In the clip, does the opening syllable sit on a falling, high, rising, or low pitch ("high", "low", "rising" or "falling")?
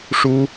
high